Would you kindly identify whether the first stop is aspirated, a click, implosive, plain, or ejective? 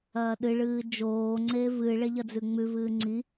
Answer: implosive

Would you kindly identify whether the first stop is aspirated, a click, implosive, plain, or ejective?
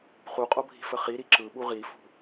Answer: ejective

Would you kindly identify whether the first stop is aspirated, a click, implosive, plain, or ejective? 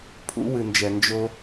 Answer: aspirated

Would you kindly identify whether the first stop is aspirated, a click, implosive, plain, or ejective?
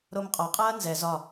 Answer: ejective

